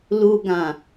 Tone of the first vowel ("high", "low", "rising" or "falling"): low